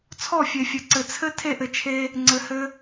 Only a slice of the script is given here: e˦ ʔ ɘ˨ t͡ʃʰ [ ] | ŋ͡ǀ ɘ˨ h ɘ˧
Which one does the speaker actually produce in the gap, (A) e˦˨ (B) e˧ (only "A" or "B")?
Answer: B